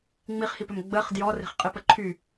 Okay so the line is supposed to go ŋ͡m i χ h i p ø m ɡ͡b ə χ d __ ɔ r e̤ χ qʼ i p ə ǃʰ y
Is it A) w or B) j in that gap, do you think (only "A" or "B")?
B